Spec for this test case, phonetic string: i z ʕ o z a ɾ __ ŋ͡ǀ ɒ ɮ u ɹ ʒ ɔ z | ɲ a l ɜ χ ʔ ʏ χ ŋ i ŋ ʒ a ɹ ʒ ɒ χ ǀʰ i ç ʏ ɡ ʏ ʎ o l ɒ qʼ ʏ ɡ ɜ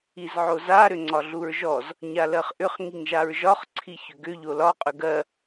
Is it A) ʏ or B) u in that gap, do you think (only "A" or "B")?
A